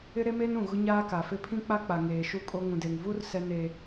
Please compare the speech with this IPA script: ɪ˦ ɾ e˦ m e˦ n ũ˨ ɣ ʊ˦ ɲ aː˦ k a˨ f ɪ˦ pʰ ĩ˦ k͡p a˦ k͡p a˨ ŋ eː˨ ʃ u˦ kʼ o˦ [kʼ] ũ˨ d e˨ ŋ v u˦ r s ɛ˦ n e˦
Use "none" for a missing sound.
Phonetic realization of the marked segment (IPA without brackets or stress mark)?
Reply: ŋ